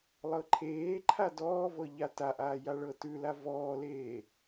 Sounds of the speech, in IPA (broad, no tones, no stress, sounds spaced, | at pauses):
lˠ ɤ ǃʰ eː ǃʰ a d ɔː v ɤ ʎ a t a ʔ aː j a ɭ ɤ t ʉ l a v ɔː l eː